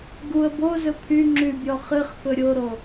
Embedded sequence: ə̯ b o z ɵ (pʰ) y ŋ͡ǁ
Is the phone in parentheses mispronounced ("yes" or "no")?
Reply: no